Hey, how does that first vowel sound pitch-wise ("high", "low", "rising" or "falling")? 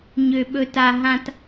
low